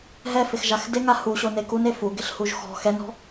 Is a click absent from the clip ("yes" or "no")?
yes